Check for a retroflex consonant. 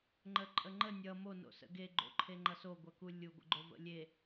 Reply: absent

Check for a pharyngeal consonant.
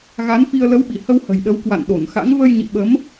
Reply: absent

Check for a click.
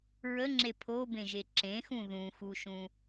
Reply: present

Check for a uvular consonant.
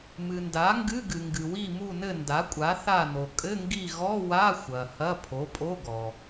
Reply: absent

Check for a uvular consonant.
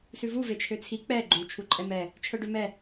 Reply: absent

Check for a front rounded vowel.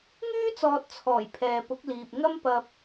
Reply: present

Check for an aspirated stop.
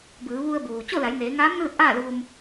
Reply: absent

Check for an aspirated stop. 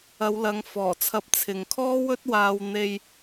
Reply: present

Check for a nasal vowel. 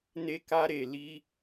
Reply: absent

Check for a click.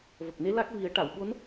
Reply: absent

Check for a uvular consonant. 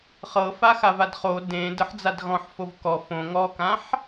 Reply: present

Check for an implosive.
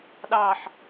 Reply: present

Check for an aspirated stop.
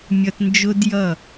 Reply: absent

